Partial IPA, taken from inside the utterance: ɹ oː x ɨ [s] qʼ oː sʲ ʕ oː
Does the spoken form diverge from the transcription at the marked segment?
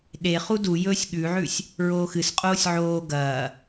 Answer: no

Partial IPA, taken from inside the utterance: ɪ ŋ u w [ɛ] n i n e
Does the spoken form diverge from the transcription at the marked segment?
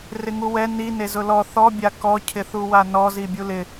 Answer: no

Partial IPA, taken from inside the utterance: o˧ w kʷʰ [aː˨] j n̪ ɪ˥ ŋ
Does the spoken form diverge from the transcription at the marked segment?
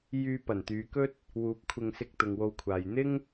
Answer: no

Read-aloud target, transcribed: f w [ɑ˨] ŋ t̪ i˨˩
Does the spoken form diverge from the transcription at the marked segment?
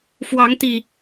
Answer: yes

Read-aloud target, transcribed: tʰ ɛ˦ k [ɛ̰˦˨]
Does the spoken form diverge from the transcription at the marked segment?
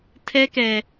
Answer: yes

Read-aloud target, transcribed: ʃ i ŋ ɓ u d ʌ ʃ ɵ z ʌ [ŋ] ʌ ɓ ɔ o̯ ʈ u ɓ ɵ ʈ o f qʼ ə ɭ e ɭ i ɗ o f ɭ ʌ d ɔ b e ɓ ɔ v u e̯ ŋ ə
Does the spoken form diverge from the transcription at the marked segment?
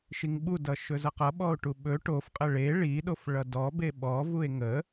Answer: yes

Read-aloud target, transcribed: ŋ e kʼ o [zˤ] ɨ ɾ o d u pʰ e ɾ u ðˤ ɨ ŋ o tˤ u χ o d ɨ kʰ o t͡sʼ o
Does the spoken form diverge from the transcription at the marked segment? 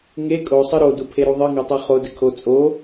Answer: yes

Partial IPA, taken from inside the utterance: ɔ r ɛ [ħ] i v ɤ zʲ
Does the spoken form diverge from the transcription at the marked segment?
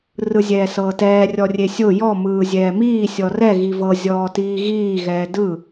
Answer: yes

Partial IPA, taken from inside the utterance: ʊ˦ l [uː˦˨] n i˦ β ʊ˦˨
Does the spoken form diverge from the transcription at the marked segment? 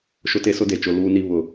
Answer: yes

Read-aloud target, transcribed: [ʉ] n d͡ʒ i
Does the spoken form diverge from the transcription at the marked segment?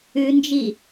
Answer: no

